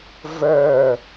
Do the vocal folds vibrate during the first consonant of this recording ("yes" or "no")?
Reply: yes